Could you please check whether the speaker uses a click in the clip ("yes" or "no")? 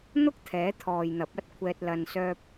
no